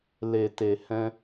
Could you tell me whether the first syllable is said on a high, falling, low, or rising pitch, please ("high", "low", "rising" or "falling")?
low